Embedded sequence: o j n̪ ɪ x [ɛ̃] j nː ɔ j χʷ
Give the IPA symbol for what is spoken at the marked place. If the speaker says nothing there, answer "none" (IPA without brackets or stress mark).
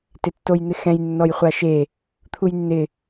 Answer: ɛ̃